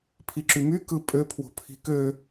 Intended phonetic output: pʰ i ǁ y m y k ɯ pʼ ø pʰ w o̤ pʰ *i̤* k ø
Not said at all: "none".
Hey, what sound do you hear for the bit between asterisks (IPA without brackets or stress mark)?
i̤